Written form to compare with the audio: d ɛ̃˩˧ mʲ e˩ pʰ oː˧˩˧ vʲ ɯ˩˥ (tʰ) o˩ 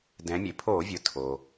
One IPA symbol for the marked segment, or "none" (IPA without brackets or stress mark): tʰ